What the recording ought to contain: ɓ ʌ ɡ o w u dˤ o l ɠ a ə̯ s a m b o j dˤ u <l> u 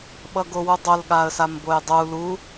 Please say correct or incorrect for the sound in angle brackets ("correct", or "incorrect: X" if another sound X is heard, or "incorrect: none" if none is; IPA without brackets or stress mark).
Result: correct